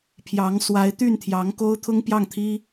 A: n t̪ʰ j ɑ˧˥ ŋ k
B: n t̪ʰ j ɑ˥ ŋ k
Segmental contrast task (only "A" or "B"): A